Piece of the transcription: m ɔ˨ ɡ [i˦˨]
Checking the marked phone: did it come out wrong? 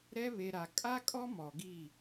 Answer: no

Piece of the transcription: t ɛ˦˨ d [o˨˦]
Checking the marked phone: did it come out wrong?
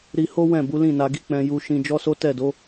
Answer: no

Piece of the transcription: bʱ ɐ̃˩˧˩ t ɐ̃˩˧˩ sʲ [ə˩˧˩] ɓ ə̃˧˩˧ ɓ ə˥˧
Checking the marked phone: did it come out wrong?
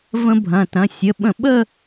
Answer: no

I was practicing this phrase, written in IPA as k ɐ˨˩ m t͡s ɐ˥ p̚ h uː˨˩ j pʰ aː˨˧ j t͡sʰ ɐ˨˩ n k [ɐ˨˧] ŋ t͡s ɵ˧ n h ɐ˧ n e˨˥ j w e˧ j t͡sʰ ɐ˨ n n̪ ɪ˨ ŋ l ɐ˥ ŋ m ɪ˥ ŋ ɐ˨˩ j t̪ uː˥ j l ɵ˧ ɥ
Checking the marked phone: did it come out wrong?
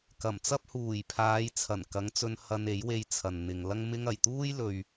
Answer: no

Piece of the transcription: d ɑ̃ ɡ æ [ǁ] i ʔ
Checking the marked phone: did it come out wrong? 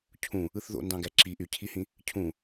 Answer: no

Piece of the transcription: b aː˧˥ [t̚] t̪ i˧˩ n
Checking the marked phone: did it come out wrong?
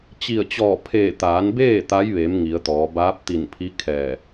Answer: yes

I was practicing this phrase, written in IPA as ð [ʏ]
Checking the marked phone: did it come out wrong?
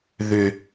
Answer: no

